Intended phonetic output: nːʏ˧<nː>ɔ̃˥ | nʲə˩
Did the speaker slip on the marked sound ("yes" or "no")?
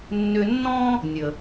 no